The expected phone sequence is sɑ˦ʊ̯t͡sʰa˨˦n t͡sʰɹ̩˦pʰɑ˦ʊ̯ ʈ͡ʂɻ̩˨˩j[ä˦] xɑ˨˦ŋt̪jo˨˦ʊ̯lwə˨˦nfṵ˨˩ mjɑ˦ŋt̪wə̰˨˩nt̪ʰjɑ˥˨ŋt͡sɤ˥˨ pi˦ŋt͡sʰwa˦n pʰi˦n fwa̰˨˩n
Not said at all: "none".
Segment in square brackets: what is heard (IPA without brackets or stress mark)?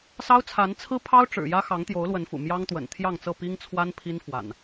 ä˦